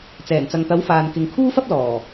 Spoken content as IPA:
t͡s ɛː˨˩ n t͡s ɐ˨ ŋ t̪ ɐ˨˥ w f aː˨ n k ɪ˨ ŋ kʰ uː˥ f ɐ˥ p̚ l ɔː˨˩

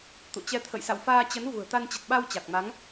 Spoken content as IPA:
t̪ ṵ˧˨ t͡ɕ ɛ˧ t̪ʰ ə̰˧˨ j s a̰˧˨ w f aː˧ t͡ɕ ə˨˦ n v ṳ˨˩ ə̯ t̪ a˧ n t͡ɕ ə˨˩ t̚ ɓ a˧ w t͡ɕ a˨˩ k̚ m a˨˦ ŋ

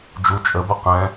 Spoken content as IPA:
d͡ʒ u t͡ʃʼ ə b ə q ɛ̃

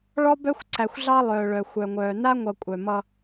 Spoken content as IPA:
ɭ ɔ˦ b œ˦ xʷ ǀ æ˨ xʷ ɮ ɑ˦ lˠ œː˨ ɭ œ˨ xʷ œ˨ ŋʷ œː˨ n a˦ ŋʷ ʌ˨ kʷʼ œ˨ m ʌ˦

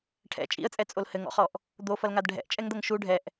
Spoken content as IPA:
ʈʰ ɛ̰ t͡ʃʼ ḭ ə̯ t͡sʼ ɛ t͡sʼ o l h ɘ ŋ ɔ̰ χ ɔ ʔ | d̪ o f ɐ l ŋ a d ɖʱ ɛ̰ ʔ t͡ʃʼ ɛ ŋ d̪ ɐ ŋ ʃ u ɖʱ ɛ ʔ

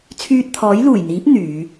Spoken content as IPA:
t͡sʰ yː˧ t̚ t̪ʰ ɔː˨˥ j l uː˨˩ j n̪ iː˨˥ p̚ n̪ yː˨˧

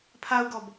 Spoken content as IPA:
pʰ a u̯ ɡ ɔ b

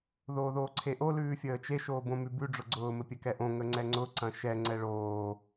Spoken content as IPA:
ð oː ð oː ǀʰ e ʔ o l ʉː fʲ əː t͡ʃ e ʃ oː b õ m ʉ b ʉ ɖ͡ʐ ʊ ɡ͡ǀ ʊː m ɘ pʲ ɘ k ɛ ʔ õ ŋ ə ŋ͡ǀ ɛ ŋ͡ǀ ʊ ǀ ɐ̃ ʃ ɛ ŋ͡ǀ ɛ ɭ oː

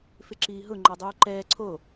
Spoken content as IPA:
f ɪ ǁ iː ɦ ʊ ŋ͡ǃ ɔ dˤ uː ǃ ɛː ǀʰ o

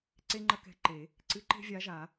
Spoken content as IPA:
ǀ e˥ ŋ͡ǃ ɐ˥ k ɛ̤˧˥ ǃ e˨˩˦ | ǀ ɨ˧˥ ǃ e̤˥ vʲ a˧˥ ʒ a˨˩˦

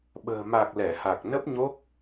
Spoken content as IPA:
ɓ ə̤ː˨˩ m a˨˩ k̚ l ɛ˧˩ h a˨˩ k̚ n ə˦˥ p̚ ɲ o˦˥ k̚

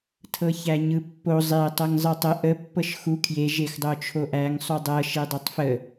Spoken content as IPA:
tʰ ɤ ç æ ɲ ɯ pː o zˤ e tˤ ɤ ŋ zˤ ɯ tˤ ə ʔ ə pː ɤ ʃ x u kʰ j e ʒ e x dˤ o t͡ʃʰ o ʔ æ ŋ sˤ u dˤ ɤ ʃ e dˤ e tˤ f ə

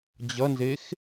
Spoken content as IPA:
d͡ʑ ʌ n z e x

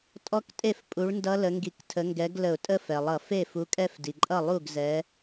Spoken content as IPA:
tʼ ɔ˦˥ k tʼ e˥˩ f pʼ u˨˦ ɭ n d ʌ˦˥ l ə˨˦ ŋ ɡ i˧˩˧ k tʰ ə˨˦ ŋ ɡ ɛ˨˦ ɡ l ə˧˩˧ ʊ̯ tʼ ə˥˧ f ɛ˩ lˠ ʌ˧˩˧ f e˥˩ f u˨˦ kʼ ɛ˥˧ f d i˩ ǃʼ ʌ˥˩ lˠ u˥˩ ɡ z ɛ˨˦

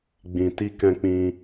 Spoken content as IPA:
ɡ͡b ĩ˨ t i˧ k ɛ̃˧ k͡p ĩ˧

